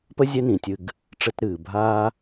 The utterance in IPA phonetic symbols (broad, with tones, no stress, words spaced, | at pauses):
pə˥ zʲɛ˦nĩ˩ tʲɨ˨ɡ | ʈ͡ʂɘ˥t ɾɨː˩ bʱaː˦